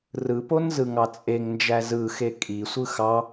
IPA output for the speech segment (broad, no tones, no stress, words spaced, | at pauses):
rɯpon zɯŋɑt͡sʼeŋnd͡ʒæ zɯxe kʼisʷɯ xɑ